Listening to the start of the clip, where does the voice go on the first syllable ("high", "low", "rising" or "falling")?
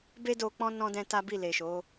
high